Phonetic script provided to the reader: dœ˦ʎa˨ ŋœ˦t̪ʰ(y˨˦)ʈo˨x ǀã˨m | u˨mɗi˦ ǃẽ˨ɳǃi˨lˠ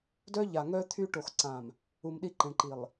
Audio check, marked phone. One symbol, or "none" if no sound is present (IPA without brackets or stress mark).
y˦